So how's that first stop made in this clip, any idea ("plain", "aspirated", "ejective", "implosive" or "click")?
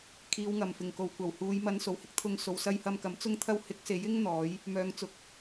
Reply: aspirated